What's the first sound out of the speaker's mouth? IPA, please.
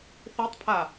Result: θ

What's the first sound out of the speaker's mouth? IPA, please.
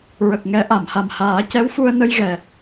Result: ɹ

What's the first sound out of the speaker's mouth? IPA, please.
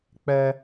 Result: k͡p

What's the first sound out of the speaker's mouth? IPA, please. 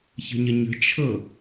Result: ç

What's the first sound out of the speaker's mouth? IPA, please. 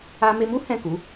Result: a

